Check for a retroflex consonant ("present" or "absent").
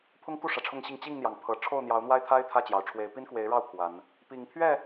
present